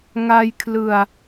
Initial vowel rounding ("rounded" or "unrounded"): unrounded